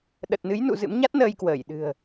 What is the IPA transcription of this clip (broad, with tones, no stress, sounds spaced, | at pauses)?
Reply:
ɗ ə˨˩ t̚ n ɨ˨˦ j n ṵ˧˨ z ɨ̰˧˥ m ɲ a˦˥ t̚ n əː˧ j k w əː˧˩ j ɗ ɨ̤˨˩ ə̯